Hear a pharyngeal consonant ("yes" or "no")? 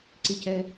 no